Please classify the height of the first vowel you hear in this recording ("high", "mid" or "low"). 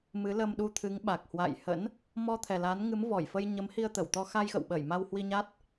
high